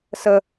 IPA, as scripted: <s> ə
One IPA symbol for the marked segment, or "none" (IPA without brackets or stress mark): s